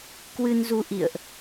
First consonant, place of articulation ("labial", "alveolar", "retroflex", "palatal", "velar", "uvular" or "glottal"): velar